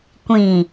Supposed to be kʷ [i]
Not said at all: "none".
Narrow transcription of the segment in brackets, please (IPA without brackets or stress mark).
ĩ